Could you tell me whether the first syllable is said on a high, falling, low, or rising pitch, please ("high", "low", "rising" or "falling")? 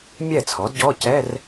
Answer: falling